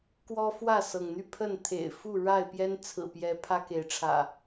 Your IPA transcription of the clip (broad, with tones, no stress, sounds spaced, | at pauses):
k w ɔ˦ f w ä˥˨ s ɤ˩ ŋ n̪ y˥˨ pʰ ə˥˨ n t̪ʰ ḛ˨˩ ɪ̯ f u˥˨ ɻ a˥˨ ɪ̯ p j ɛ˦ n t͡sʰ ɹ̩˨˩ p j ɛ˨˦ pʰ ä˦ k e˨˦ ɪ̯ ʈ͡ʂʰ ä̰˨˩